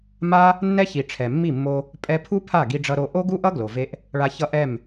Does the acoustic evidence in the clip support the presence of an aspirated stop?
yes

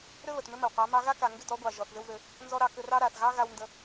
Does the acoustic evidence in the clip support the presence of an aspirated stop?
no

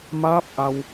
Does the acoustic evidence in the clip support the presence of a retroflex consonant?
no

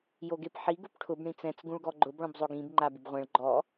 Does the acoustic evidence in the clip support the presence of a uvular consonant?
yes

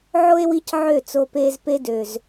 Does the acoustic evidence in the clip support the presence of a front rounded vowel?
yes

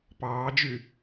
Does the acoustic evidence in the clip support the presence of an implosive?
no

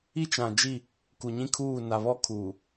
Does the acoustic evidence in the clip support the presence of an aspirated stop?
yes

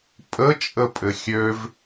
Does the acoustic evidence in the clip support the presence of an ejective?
yes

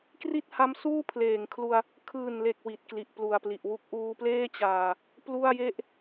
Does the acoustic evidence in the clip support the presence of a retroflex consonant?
no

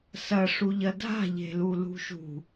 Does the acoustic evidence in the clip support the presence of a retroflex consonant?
yes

